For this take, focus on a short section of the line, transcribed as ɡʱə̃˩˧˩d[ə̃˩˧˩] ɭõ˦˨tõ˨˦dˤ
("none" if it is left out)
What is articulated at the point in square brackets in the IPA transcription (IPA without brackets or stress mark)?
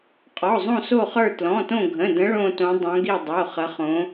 ə̃˨˦